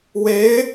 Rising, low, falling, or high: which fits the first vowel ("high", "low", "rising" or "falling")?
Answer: rising